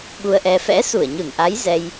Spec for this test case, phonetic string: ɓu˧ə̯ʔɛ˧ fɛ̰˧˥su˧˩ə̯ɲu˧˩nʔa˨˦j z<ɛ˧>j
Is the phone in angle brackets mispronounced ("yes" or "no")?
no